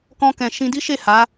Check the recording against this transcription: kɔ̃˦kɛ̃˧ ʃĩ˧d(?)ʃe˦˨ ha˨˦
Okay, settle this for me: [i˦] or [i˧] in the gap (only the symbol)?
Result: i˦